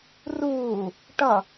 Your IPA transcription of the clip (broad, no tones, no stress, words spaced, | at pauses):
ruː | ʈʌ